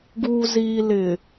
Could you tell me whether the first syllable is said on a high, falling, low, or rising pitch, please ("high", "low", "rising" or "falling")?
low